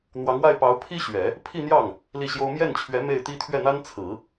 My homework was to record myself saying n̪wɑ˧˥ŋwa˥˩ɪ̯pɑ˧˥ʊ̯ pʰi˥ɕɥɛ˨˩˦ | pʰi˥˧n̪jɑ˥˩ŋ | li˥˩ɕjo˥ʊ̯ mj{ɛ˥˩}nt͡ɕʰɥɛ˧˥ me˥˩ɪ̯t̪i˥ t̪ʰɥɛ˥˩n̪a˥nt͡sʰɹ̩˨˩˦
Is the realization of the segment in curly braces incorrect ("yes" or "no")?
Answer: no